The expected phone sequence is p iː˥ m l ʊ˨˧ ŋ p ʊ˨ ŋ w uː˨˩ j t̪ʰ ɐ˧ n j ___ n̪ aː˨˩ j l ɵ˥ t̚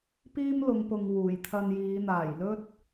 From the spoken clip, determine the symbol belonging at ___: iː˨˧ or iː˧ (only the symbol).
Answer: iː˨˧